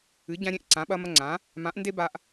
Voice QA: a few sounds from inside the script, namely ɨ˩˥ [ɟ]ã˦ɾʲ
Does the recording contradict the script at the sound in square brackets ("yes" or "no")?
no